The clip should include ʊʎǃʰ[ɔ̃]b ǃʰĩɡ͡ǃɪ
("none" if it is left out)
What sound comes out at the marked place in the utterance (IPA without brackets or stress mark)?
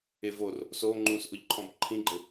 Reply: ɔ̃